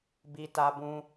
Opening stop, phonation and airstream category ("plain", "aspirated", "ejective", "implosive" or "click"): plain